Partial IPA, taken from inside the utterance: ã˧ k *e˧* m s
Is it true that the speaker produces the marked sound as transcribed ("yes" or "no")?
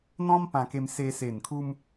yes